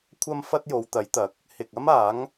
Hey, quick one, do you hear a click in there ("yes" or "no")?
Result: no